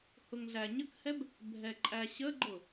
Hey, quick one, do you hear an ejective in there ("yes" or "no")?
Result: yes